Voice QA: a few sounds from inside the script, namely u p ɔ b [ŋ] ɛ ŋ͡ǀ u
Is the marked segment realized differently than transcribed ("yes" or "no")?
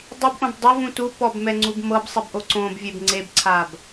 yes